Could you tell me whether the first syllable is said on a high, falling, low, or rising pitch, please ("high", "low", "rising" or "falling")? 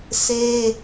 high